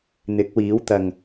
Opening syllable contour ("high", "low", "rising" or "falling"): rising